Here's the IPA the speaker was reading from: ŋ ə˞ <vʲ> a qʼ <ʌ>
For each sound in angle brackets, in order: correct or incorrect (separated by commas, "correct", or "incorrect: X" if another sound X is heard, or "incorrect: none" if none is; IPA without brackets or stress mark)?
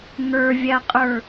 correct, incorrect: ə˞